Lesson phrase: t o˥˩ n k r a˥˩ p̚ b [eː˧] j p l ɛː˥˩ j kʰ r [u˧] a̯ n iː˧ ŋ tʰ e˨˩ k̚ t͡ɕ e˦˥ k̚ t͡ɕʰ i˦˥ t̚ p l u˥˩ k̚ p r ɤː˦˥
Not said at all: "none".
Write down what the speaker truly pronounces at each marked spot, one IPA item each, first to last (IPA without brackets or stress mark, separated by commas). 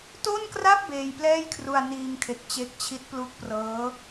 eː˧, u˧